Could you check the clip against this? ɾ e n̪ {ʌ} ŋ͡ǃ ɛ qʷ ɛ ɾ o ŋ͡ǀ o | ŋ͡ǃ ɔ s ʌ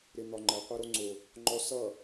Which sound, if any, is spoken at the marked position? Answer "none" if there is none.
ɒ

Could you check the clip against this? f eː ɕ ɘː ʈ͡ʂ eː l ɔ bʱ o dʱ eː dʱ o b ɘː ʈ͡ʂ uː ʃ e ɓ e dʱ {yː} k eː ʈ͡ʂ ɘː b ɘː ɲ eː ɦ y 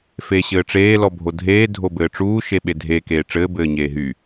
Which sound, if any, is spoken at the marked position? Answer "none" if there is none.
eː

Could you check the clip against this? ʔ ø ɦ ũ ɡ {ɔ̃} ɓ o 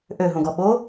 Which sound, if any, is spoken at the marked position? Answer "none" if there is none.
ɔ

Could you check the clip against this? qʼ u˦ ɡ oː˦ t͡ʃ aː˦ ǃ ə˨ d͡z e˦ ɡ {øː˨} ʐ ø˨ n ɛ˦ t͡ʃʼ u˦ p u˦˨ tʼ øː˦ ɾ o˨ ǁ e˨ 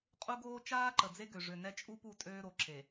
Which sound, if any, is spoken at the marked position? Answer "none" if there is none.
ø˨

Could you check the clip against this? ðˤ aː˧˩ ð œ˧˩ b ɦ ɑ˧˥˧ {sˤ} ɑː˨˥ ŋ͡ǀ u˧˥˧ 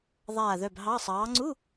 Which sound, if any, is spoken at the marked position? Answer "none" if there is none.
sˤ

